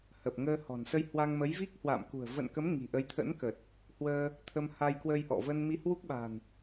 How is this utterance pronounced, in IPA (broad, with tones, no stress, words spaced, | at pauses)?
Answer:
hə˨˩p̚ŋəː˧hɔ̤˨˩n sə˧jhwa˧ŋmə˨˦jvi˦˥k̚ hwa̰˧˨mkṳ˨˩ə̯ və̰˧˨nkə˨˦m ŋi̤˨˩ʔə˨˦jt̪ʰə̰˧˥nkə˨˩t̚ | hwəː˧ | t̪ʰə˧mha˧jkwə˧j ʔɔ̰˧˨və˧nmi˧ hwu˦˥k̚ɓa̤˨˩n